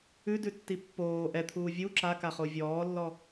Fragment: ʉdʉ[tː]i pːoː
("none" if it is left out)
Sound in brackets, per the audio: tː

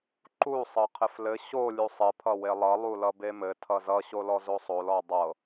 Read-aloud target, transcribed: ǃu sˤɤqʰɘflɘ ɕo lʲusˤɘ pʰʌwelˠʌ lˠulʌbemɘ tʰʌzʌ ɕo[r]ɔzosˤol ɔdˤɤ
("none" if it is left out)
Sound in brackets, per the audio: l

